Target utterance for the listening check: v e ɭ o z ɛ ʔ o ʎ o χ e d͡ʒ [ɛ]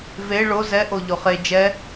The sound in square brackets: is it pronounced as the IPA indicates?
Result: yes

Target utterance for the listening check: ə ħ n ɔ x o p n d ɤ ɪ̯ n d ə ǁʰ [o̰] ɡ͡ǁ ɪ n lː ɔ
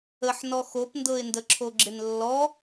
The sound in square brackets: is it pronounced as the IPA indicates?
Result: no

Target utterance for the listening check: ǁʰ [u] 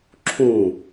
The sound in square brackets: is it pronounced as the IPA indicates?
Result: no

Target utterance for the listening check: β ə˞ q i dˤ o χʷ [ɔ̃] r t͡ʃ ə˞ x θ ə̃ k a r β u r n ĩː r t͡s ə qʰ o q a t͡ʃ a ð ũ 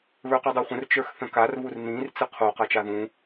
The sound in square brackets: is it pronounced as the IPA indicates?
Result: no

